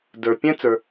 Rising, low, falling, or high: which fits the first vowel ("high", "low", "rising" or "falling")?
low